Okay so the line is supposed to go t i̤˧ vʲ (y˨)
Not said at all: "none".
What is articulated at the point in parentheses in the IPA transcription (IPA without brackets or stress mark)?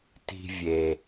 e˨